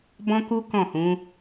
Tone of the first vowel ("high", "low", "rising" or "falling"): high